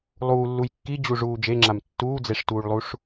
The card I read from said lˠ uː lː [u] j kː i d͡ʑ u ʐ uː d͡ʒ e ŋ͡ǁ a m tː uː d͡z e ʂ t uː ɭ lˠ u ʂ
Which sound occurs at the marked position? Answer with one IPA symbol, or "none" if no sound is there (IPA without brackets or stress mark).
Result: u